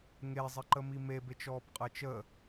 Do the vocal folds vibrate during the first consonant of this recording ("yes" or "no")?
yes